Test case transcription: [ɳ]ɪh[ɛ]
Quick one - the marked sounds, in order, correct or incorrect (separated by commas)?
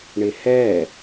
correct, correct